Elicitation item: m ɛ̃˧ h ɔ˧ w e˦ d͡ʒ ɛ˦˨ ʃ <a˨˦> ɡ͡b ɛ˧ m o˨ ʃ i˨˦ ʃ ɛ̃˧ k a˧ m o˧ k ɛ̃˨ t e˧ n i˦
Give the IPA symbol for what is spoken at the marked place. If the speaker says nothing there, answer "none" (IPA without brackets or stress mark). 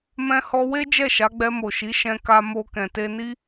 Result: a˨˦